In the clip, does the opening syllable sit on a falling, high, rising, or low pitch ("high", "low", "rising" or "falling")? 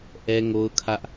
high